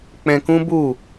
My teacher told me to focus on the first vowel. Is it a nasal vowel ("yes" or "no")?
yes